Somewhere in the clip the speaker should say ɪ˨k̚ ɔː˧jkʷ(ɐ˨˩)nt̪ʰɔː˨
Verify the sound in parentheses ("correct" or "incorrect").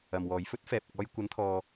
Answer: incorrect